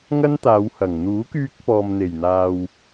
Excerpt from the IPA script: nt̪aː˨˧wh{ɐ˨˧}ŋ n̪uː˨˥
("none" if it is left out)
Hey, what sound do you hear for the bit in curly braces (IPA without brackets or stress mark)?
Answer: ɐ˨˩